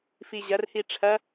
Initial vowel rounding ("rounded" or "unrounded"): unrounded